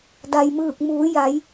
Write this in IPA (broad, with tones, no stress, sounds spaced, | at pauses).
d a˩ j m ɯː˧˩ k̚ m uː˩˧ j a˩˧ j